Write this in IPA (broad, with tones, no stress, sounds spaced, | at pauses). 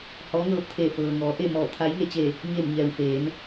h ɔː˧˥ ŋ ɤː˧˥ p̚ t̪ʰ eː˧˩ f ɤː˩ ŋ ɔː˩˧ ʔ e˥˨ m ɔː˧˩ t̪ʰ a˧˥ j ŋ e˥˨ t͡ɕ e˧˩ | ɲ e˧˩ m ɲ ɛː˩ w f eː˩˧ n